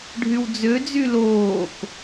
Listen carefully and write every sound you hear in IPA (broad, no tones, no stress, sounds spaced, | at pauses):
ɖʱ y w d͡z ø d͡z y l oː k